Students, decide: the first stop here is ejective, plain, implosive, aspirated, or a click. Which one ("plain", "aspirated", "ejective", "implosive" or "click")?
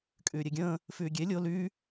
ejective